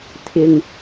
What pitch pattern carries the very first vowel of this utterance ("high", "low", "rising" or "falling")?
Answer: low